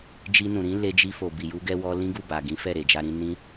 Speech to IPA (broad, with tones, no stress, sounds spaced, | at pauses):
d͡ʒ i˧ n ũ˨ ɾ ĩ˨˦ l e˧ d͡ʒ i˧ f o˨ b i˨ j u˧ ɡ ɛ˧ w ɔ˧ l ĩ˦ ɡ u˦˨ b a˨ ɡ ĩ˨˦ f ɛ˦˨ ɾ e˨ d͡ʒ a˧ ɾ ĩ˧ n ĩ˧